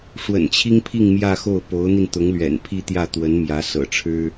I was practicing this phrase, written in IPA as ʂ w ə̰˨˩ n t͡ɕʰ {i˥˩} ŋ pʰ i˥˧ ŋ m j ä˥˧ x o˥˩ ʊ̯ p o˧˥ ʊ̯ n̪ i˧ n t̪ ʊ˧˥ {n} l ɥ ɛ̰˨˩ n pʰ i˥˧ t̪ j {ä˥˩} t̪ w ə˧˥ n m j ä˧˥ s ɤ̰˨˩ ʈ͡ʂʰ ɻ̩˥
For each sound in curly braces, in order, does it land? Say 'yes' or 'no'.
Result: no, no, yes

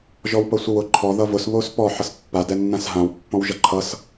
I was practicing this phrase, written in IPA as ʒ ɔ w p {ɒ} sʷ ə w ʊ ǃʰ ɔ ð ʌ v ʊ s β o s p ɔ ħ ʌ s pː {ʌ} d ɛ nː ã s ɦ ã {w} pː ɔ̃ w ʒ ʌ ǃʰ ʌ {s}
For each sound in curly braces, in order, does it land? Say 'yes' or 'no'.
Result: no, no, yes, yes

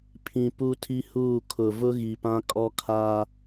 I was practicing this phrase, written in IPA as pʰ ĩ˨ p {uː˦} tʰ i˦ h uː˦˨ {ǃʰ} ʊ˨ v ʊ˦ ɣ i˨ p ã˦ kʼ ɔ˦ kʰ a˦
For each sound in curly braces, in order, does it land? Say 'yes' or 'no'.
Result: no, no

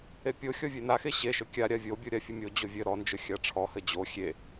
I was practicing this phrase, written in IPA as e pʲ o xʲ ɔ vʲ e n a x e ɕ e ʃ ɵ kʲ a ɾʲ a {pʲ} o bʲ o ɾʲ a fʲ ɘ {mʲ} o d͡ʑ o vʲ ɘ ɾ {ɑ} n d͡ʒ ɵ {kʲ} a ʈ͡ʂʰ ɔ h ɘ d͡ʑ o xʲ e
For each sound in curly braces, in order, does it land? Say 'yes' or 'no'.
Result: no, yes, no, no

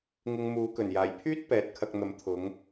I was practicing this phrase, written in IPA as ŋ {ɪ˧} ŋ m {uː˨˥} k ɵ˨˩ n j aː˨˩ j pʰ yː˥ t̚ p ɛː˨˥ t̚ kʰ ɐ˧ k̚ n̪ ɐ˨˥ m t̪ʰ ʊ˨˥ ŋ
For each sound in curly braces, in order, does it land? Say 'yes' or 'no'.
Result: yes, yes

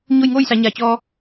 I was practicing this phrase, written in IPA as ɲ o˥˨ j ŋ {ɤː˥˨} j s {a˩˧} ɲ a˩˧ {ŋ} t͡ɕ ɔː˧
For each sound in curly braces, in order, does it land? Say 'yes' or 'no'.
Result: no, yes, no

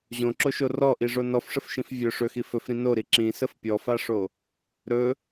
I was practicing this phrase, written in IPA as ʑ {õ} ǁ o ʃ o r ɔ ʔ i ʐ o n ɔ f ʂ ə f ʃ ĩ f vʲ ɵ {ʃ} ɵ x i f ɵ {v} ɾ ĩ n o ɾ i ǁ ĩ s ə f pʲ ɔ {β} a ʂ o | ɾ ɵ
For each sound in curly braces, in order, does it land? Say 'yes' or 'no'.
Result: yes, no, no, no

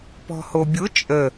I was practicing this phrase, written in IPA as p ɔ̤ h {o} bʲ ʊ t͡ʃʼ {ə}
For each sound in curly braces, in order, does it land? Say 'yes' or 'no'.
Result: yes, yes

